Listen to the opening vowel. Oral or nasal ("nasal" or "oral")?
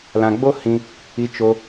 nasal